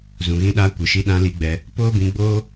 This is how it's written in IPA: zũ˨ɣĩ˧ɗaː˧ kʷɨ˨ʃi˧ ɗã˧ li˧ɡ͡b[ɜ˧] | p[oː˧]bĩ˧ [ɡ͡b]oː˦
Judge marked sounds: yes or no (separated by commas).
no, no, yes